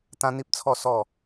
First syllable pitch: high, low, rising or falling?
high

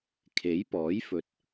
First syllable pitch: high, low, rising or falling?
rising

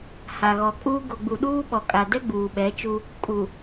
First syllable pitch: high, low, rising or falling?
low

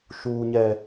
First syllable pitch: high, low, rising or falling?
high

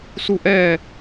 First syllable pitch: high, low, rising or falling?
falling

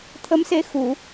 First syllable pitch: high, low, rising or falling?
rising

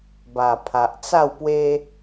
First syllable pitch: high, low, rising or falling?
low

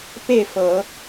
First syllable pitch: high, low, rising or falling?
falling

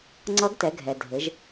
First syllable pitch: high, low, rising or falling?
rising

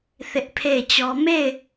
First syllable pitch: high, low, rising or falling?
high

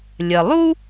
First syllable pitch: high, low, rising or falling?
low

